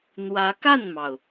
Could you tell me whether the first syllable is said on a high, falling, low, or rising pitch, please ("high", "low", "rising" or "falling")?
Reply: rising